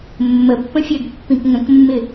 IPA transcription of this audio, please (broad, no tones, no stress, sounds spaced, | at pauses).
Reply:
mː ə pː ə̃ fʲ ɜ ɡ pː ĩ k ŋ ə̃ k mː ɪ